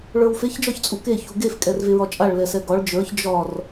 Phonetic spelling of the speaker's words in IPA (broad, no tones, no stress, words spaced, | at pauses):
ɭə˞wfeç d͡ʒɒçt͡sʼuke çuɡef kʼɛrveɹɒt͡ʃʼaɭ lɛsɛɡɒɭ d͡ʒə˞ç d͡ʒɒr